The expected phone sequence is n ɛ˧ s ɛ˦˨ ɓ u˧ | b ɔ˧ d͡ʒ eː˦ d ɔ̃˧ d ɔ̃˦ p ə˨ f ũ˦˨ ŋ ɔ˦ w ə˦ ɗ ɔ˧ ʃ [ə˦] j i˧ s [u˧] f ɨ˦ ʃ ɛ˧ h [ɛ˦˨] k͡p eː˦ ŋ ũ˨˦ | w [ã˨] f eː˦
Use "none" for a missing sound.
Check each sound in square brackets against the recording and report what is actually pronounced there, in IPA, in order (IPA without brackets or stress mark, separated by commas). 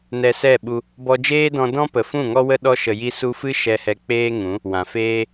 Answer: ə˨, u˧, ɛ˧, ã˨